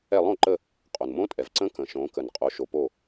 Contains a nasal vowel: yes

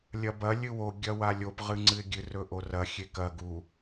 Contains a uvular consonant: yes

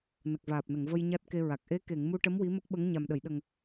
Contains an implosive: yes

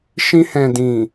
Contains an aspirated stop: no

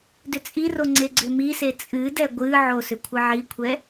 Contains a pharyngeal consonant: yes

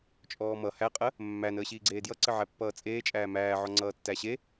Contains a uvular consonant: yes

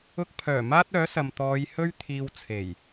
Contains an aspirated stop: yes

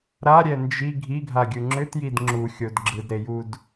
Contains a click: yes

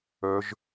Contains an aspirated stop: no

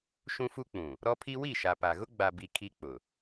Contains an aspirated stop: yes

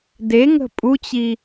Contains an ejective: yes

